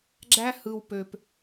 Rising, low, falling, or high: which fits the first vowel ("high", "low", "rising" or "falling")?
high